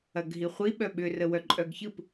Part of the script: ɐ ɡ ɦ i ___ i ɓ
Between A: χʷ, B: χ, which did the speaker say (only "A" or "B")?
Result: A